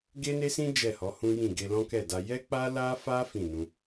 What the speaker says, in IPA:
ɡe˦ne˦sĩ˦ d͡ʒɛ˦˨hɔ˨˦hũ˦jĩ˦˨ ɡe˧lɔ̃˦kɛ˦˨da˧ jɛ˦k͡pa˦la˦fa˦ fĩ˦˨nũ˧

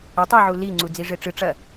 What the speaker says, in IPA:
ɐ tˤiʕu li ŋ͡ǀud͡ziʐeʈ͡ʂɨ ʈ͡ʂɐ

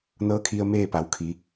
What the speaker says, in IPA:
nɤː˧˥kʰi˧ə̯ meː˥˨pa˩˧wkʰi˩˧

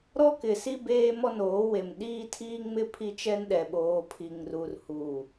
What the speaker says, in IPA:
ɾɔ˦kɪ˨si˦ beː˦mɔ˦noː˨˦we˨m ɗiː˦tʰiː˦ŋmɪ˦ pʰi˦t͡ʃɛ˦nɗɛ˨ɓoː˨ pʰi˨ŋru˨r hu˨

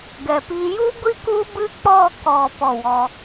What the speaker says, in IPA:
ɡɛ˨pi˧ ju˦ɡʷi˦ ku˦bɨ˦ k͡pɔ˦˨kɔ˨ pɔ˦˨wɔ˧

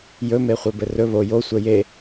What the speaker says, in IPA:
jɵmeχʷe bɘrɵ βo josʷɛ je

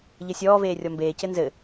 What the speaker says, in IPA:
ʎɘsʲɔːveː rʲɔmbeːcɘ nzɘ

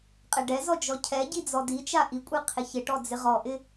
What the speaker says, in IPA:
qʼɛɖɛzɔ d͡ʒɔcʰɛɟi d͡zɔdit͡ʃa ʔikʷʼe qʰɪçɪʈɔ d͡zɪʁɔʔɪ

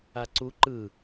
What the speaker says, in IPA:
aǀu ǃɯ

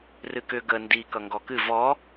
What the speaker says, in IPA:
rɨkʏ ɡə ndi kʌŋɡɔkɨ vɔ

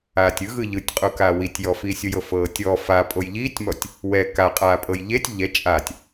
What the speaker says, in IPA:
aːtʲɯɣɯ ʎɯtʲqʼukaː witʲjɔfiːsʲoj ɤfɤːtʲɔ fa pʼojʎiːtʲmɔtʲ | wɛ kaqʼaːpʼɤj ʎetʲ ʎɛ t͡ʃʼatʲ

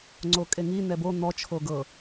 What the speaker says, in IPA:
ŋ͡ǀokʼeŋi n̪ɛbo n̪ɔ t͡ʃʰoɡɤ

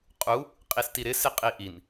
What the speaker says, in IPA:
qʼu | qʼistiɾɪ sɪqʼiʔin

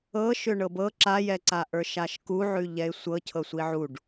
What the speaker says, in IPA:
ɤ ʃʏɳɤbɤ ǁajɛǀa ʔə˞ʃaʃkuʕʉ ʎɛɪ̯sʷɤcʰɤsʷi ʕuɖ

